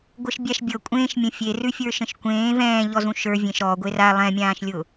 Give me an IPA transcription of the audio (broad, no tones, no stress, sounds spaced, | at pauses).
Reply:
ɡʷ ɤ ʃ bʲ a ʃ bʲ ɤ kʷʼ ẽ ʃ mʲ ə̃ fʲ e r ʉ fʲ ə˞ ʃ ə̃ ʃ kʷ ẽː v ɛ̃ː ʎ ɔ z ũ ʃ ə˞ vʲ ẽ ʃ ɾ ɔ ɡʷ e r a lˠ ɛ̃ mʲ ãː ʃ lʲ ʊ